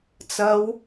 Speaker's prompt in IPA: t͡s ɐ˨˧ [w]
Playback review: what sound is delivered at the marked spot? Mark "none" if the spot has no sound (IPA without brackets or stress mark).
w